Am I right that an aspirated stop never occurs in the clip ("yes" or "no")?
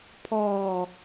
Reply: no